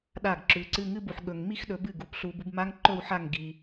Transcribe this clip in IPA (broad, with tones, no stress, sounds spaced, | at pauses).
ɗ a˥˩ ɡ ǁ ʉ˨˦ ǀ ɨ˥˧ ŋ ɨ˥˧ b u˨ ħ ɠ ɵ˨ ŋ m i˥˧ x ɗ ɵ˨˦ b ɨ˥˩ ɡ u˨ p ɬ u˨˦ b u˨˦ b m a˦˥ ŋ ǃ ɵ˥˧ w ħ a˥˩ ŋ ɡ i˨